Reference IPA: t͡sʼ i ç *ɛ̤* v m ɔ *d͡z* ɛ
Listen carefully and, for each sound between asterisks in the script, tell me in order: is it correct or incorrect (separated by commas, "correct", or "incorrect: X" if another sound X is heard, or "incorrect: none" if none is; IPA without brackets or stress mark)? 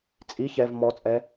incorrect: ɛ, incorrect: t͡sʼ